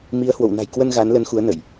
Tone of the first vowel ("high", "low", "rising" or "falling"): rising